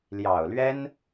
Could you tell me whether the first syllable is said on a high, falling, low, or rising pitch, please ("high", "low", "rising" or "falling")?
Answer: low